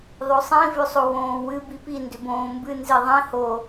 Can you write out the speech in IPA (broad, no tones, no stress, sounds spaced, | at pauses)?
ðˤ o sˤ ĩ v ʏ sˤ o w õː w ɨ b i p i n d ʏ b õː m b ɨ n z i ðˤ ĩ h o